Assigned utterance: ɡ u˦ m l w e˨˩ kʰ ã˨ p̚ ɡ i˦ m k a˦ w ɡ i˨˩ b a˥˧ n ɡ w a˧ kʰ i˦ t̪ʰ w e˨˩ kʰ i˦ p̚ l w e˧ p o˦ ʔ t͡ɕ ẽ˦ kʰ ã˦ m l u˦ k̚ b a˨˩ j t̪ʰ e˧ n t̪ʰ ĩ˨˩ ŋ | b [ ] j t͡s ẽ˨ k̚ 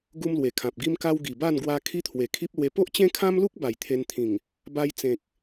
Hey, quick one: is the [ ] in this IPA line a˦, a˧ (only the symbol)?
a˧